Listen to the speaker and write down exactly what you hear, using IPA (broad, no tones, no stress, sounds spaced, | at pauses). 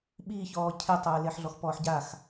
ɓ i ç ɔː cʰ e tˤ ɘː l e ħ ɮ ɔ x p ɔː ħ ɟ a x